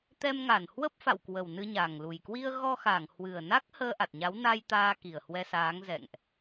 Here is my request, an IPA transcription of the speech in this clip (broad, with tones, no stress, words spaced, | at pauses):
t̪ɛ˧mŋa˧˩nhwə˦˥p̚ fa̰˧˨wkwə˨˩wnɨ˧ ɲa˨˩ŋlu˨˩j kwi˧ə̯ɣɔ˧xa˧˩ŋ hwɨ˨˩ə̯na˦˥k̚ həː˧ʔa˨˩t̚ɲa˨˦w na˧j t̪aː˧ki˨˩ə̯hwɛ˧saː˨˦ŋ zɛ̰˧˨ŋʔ